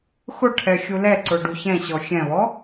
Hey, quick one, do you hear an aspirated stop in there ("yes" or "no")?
yes